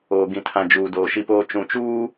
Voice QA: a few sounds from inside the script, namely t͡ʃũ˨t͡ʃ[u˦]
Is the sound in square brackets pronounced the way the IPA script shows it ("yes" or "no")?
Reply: no